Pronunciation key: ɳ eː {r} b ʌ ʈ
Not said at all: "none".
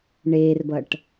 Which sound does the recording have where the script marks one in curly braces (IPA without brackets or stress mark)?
r